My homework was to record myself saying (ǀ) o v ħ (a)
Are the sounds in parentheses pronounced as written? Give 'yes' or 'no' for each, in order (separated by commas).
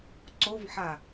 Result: yes, yes